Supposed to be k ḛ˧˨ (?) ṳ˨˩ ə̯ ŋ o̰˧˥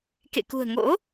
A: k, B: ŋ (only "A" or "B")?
A